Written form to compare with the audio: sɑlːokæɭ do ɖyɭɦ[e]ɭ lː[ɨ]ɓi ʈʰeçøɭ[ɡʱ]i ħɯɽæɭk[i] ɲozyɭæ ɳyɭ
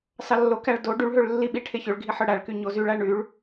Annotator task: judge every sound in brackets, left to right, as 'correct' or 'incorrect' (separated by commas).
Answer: incorrect, incorrect, correct, incorrect